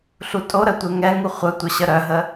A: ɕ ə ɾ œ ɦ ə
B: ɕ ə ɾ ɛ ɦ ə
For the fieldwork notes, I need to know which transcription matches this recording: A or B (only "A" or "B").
A